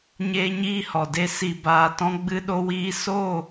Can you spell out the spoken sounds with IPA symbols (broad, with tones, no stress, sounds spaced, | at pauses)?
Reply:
ɲ eː˦ ɲ iː˦ h ɔ˨ d e˦ s i˧ b aː˧ t ɔ̃˦ ɡ͡b ɨ˦ ɗ o˦ w iː˦ s oː˦˨